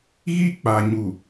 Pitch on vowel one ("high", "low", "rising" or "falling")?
high